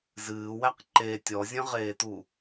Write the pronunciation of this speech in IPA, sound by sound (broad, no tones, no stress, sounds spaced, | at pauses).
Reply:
z ɨː w æ q ǃ e tʲ ɔ zʲ ə̃ ʁ eː t u